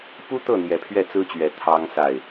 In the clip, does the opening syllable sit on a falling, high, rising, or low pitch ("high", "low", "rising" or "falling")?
high